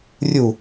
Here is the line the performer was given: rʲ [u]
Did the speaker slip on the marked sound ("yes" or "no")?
no